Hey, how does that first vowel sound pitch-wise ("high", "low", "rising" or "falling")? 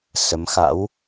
rising